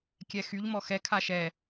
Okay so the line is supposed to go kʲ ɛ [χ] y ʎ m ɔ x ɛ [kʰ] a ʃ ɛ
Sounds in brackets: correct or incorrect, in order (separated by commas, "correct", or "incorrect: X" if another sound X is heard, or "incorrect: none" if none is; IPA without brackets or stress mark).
incorrect: x, correct